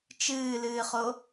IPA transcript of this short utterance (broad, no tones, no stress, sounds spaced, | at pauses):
t͡ʃ ɨː l ɨː χ o